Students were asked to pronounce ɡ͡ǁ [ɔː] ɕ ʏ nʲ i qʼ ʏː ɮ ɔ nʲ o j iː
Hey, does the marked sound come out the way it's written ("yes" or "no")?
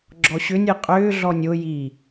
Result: no